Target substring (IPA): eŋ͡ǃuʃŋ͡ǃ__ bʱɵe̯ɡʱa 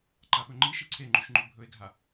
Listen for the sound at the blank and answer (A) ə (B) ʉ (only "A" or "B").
B